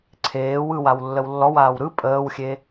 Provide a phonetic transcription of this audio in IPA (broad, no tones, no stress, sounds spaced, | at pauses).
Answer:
ǀʰ eː w ɯ w a w lː ə w lː ɔ w aː w ɾ ɯ pʼ əː w xʲ e